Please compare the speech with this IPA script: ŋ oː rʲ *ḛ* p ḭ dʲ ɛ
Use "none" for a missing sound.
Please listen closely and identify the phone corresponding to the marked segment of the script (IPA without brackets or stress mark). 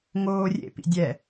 ḛ